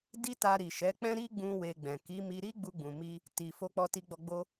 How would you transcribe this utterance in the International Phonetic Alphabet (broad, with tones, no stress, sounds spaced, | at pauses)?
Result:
d i˦ t a˧ ɾ i˨ ʃ ɛ˨˦ k͡p ɛ̃˦ ɾ i˦ ɡ͡b ũ˧ w e˧ ɡ͡b ɛ̃˨ k i˨˦ m i˧ ɾ i˦ ɡ͡b u˧ ɡ͡b ũ˨ m i˧ | t i˨ f o˧ k͡p ɔ˧ t i˧ ɡ͡b ɔ˧ ɡ͡b o˦